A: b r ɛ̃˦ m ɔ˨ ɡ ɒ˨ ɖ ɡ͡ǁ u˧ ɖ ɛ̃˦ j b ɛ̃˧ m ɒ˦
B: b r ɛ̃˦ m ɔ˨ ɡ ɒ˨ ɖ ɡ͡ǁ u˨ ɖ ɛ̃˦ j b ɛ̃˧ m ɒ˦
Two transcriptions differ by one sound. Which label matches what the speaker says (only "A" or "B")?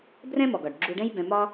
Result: A